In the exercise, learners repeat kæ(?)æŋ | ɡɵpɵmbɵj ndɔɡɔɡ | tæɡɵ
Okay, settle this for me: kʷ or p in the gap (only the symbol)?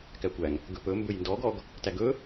kʷ